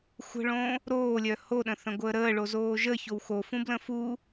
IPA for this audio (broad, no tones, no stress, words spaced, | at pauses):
xʷə̤ɭõ | ɾoːlʲœ hoɗə̃θə̃ɡʷəː ɾəːɭozoː ʒəçow xofũblə̃ fu